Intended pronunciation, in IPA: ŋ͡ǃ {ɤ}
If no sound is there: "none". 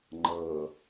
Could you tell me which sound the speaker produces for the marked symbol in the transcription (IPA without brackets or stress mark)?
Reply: ɤ